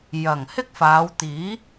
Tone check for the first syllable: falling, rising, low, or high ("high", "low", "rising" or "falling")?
low